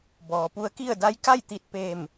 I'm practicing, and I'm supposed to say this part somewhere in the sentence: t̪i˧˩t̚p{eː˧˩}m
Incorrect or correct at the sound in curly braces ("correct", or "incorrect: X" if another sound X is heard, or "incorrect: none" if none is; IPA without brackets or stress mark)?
correct